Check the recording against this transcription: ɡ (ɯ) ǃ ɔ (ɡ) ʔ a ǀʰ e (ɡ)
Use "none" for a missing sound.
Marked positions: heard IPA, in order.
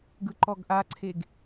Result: ɯ, ɡ, ɡ

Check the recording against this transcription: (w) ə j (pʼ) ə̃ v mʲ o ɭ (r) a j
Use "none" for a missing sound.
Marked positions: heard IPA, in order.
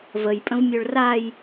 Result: v, pʼ, r

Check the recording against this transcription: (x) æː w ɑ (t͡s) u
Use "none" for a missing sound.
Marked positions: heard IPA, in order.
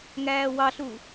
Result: ŋ, ɬ

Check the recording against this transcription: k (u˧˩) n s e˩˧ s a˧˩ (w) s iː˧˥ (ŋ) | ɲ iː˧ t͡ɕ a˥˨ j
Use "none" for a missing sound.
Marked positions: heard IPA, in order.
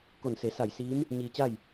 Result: o˧˩, j, m

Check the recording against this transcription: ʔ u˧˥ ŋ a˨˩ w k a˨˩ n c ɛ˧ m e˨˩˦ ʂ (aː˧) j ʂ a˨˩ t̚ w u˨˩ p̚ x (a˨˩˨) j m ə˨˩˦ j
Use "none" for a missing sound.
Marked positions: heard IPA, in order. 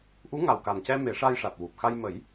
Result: a˧, a˧

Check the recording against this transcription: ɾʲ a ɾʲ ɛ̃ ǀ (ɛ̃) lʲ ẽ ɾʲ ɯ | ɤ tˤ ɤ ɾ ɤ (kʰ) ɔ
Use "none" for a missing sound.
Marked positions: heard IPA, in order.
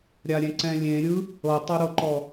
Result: ɛ̃, ǃ

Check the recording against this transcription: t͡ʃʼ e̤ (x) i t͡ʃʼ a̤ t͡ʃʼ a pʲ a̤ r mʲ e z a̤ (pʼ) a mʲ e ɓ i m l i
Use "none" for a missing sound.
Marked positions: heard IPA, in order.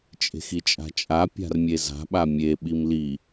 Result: x, ɓ

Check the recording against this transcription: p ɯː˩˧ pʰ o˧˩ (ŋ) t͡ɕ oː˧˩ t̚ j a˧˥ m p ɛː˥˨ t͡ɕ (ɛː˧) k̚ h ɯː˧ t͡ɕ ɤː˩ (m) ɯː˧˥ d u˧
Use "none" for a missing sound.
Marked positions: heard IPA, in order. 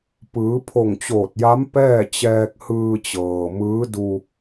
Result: ŋ, ɛː˧, m

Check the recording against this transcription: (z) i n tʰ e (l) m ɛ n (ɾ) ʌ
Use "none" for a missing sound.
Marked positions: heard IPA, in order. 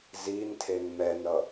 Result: z, n, ɾ

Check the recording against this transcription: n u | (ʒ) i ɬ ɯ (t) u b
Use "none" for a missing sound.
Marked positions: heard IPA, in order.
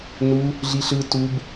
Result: ɮ, t

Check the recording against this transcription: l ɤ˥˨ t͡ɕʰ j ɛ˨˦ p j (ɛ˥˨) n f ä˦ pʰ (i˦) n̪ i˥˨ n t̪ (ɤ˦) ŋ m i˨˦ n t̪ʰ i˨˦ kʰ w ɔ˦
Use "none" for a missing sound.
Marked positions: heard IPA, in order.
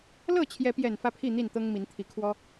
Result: ɛ˨˩, i˥˨, ɤ˦

